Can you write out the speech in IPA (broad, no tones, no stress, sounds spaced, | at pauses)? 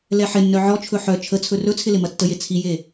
l ɛ ħ ɪ nː œ ʕ ɔ t͡ʃʰ ɵ ħ œ t͡ʃʰ ə t͡sʰ ɵ r ɵ t͡sʰ ɪ l ɪ m ɐ tː ə j e t͡sʰ i j e